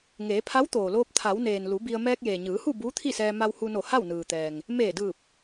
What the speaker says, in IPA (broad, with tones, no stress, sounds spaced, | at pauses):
ŋ eː˩˧ pʰ a˧˥ w t̪ oː˩ l oː˧ p̚ t̪ʰ a˩˧ w n eː˩ n l u˩˧ b i˧ ə̯ m ɛː˧ k̚ j eː˩ ɲ ɯː˩˧ h u˥˨ b uː˧˥ t̪ʰ i˥˨ s ɛː˧ m a˧ w h u˧ n o˧˩ h a˥˨ w n ɯː˩ t̪ ɛː˩ ŋ | m eː˧˩ d ɯː˧˩ p̚